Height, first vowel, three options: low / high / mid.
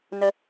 mid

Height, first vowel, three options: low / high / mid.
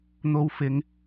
mid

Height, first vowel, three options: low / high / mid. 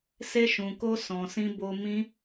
mid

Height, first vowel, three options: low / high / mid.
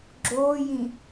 mid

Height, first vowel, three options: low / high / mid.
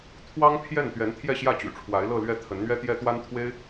low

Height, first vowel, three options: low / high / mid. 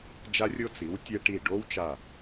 low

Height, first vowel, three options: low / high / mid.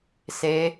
mid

